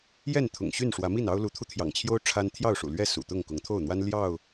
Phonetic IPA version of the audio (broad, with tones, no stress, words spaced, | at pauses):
jɛ˥˨nt̪ʰʊ̰˨˩ŋɕy˥˨nʂwä˨˦ mi˥˨nɑ˦ʊ̯ lu˨˦t̪ʰu˧t̪ʰjɑ̰˨˩ŋt͡ɕʰjo˦ʊ̯ ʈ͡ʂʰa˦n t̪ʰjɑ˥˨ʊ̯ʂṵ˨˩lɥɛ˥˨ sṵ˨˩t̪ʊ˥˨ŋ kʊ˨˦ŋt̪ʰo˥˨ʊ̯n̪wa˦n ljɑ˥˨ʊ̯